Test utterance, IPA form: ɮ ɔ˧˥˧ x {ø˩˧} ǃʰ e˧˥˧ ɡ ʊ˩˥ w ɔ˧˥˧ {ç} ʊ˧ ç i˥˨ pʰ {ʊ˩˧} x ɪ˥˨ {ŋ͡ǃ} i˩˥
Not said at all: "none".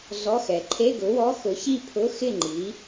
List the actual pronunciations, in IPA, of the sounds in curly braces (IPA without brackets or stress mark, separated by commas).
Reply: ɛ˩˧, x, ʊ˧˥˧, ŋ͡ǃ